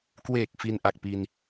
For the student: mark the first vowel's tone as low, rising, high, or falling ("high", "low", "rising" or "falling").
low